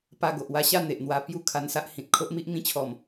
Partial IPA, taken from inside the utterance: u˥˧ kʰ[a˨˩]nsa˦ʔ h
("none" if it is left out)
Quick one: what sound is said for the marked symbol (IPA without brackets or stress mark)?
a˧